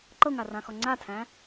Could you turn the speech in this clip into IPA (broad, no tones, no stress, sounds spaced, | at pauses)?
ǃ ɤ ŋ a r ã x ɔ ŋ͡ǀ a tʰ æ̃